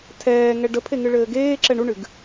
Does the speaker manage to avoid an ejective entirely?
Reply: yes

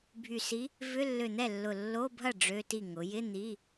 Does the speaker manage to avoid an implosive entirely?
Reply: yes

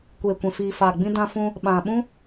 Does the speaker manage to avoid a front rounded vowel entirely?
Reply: yes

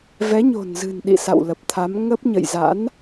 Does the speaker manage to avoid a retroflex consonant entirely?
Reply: yes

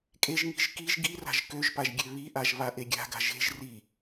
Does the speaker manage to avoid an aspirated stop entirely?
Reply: yes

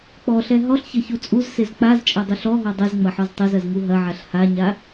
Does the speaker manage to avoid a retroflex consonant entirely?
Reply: yes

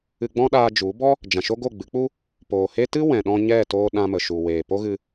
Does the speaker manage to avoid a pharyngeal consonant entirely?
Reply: yes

